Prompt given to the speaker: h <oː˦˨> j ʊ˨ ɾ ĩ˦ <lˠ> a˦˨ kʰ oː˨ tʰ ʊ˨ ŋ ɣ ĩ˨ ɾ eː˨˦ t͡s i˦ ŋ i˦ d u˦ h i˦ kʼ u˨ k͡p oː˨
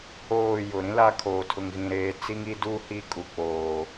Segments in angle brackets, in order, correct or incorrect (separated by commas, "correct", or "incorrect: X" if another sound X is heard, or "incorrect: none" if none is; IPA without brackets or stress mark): correct, incorrect: l